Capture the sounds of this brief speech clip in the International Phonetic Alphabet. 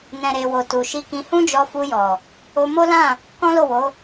n ɛ̃˨ ɾ e˨ w o˨ t u˨ ʃ i˧ k ĩ˧ h ũ˦ d͡ʒ ɔ˧ f u˧ j ɔ˨ | o˧ m o˦ l ã˦˨ | k ɔ̃˦ l o˦˨ w o˨˦

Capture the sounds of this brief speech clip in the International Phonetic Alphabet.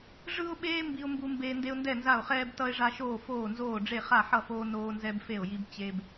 ʐ ɯ˦ ʊ̯ ɓ eː˦ m b i˦ ʊ̯ m b u˦ m b eː˦ n d e˦ ʊ̯ n d ɛ˥˩ n z a˥˩ ʊ̯ χ ɛː˦ b t ʌ˦ ɪ̯ ʐ a˦ ʃ oː˥˩ f oː˥˩ n z oː˥˩ ɖ͡ʐ e˥˩ χ a˥˩ ħ ʌ˥˩ f oː˦ n oː˦ n z ɛ˦ b f e˥˩ ʊ̯ j i˦ b t͡ɕ e˦ b

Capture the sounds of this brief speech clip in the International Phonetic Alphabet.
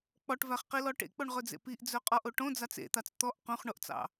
k͡p ɔ ʈ v æ χ q i l ɔ ʈ ḛ k͡p o ɳ ʁ ɵ d͡z ḛ p i ʔ d͡z œ qʼ ɔ ʔ o ʈ õ d͡z ɑ t͡s ḛ t̪ ɑ t͡s t̪ ɔ ʔ q õ χ ɳ o ʔ t͡s ɑ̰

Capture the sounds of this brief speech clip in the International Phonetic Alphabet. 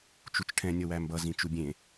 t͡ʃ u t͡ʃ ʈʰ ɛ̃ nʲ ʌ w æ m b ʌ z ĩ t͡ʃ u bʲ ẽ

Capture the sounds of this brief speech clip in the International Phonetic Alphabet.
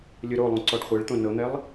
lʲ ɯ ɾ o lˠ õ ǀ ɔ ɖ χʷ e ɭ t̪ õ n ɤ n̪ ɛ lˠ

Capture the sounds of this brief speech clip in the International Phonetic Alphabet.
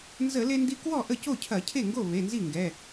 n z ə˧˩˧ l e˧ n d i˧ k w ɔ˥˩ ʔ ə˥˩ c o˥˩ cʰ ɐ˧˩˧ cʰ e˥˩ ŋ ɡ o˥˩ β e˩˧˩ n z i˥˩ ŋ ɡ ɛ˩˧˩

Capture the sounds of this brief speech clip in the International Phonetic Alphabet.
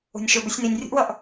o̤ nʲ ʃ ɵ b ɵ sʲ n i nʲ rʲ ə̤ ʔ w ʌ ʔ

